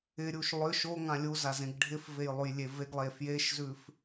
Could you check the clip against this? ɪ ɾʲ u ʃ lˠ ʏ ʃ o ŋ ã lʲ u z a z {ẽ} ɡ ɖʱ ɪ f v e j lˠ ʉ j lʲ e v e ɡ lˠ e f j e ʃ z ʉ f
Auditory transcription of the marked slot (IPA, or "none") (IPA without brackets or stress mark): ẽ